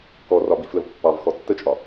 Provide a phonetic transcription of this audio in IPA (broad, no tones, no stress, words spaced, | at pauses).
kɔrɒ bifləv pːɑvxɔ tːət͡ʃʼɒ